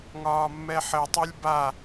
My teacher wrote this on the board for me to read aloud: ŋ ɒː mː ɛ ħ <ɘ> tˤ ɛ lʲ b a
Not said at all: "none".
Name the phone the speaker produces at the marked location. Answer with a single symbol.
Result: ɘ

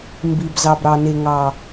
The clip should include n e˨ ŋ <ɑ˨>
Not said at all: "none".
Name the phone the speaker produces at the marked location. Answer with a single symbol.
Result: ɑ˨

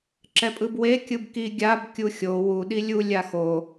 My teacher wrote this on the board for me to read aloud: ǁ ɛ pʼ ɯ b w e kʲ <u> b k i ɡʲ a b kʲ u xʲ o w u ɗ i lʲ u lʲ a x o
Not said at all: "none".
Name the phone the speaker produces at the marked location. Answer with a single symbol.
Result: ɯ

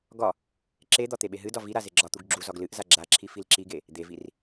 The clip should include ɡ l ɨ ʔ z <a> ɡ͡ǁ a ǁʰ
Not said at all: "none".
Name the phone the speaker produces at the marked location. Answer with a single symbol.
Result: a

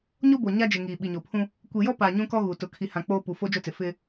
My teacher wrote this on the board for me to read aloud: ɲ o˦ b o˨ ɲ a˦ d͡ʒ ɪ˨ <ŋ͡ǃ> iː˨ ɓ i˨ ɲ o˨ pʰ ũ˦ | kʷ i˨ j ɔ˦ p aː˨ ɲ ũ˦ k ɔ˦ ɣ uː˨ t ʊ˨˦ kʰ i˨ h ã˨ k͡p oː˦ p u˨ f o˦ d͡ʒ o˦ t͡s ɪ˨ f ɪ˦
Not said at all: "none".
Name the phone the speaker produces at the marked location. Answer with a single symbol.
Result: ŋ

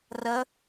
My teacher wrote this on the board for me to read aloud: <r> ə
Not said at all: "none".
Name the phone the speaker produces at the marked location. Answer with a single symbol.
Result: r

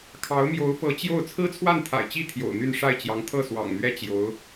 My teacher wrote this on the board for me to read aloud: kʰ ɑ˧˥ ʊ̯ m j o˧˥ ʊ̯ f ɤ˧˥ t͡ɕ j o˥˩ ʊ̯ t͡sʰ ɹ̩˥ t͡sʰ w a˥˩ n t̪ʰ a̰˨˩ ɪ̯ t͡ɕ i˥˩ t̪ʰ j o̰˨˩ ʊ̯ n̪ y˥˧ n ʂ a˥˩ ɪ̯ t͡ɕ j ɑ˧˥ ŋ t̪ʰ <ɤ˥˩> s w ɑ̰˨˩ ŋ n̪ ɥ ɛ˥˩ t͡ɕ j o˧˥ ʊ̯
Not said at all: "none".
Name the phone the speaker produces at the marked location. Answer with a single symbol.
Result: ɤ˥˩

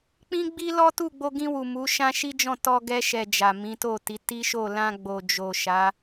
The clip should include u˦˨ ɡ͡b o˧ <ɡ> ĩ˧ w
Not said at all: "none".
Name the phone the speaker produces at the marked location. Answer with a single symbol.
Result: ɡ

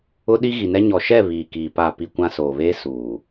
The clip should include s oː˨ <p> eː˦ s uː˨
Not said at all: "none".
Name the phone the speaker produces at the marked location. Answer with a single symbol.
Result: β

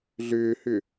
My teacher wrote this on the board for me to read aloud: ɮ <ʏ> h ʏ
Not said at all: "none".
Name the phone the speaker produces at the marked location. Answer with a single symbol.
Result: ʏː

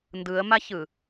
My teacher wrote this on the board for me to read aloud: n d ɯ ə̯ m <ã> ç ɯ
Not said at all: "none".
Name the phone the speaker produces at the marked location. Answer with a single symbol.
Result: a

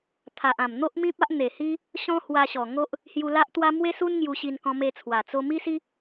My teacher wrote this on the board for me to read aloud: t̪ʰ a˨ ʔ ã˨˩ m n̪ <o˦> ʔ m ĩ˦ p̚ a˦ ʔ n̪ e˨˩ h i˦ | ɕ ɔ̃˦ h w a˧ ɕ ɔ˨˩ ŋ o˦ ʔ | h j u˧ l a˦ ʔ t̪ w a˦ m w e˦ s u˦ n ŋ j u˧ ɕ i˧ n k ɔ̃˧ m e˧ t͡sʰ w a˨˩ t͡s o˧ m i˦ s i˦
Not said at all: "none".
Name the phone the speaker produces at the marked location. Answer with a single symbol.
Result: o˦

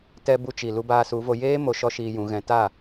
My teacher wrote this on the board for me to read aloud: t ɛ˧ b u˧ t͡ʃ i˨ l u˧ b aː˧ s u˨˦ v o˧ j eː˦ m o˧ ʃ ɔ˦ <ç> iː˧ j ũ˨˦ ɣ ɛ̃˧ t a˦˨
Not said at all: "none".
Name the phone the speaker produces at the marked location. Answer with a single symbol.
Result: ʃ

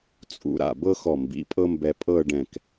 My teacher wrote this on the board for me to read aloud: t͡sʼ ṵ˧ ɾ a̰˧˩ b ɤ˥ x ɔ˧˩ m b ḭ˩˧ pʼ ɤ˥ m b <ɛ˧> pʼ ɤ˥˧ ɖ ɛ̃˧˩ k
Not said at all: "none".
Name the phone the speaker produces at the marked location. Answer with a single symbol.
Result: ɛ˧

